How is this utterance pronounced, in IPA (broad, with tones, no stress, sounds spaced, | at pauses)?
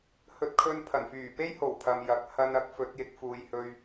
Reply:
h ɵ˧ t̚ kʰ ɵ˧ n pʰ ɐ˨˩ n f yː˨˩ p e˥ j h o˨˩ w pʰ ɐ˨ m j ɐ˨ k̚ h ɐ˧ n ɐ˨˥ k̚ f ɵ˨˥ t̚ j ɪ˨˥ k̚ f uː˨ j h ɵ˨ ɥ